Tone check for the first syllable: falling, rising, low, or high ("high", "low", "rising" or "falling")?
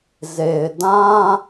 low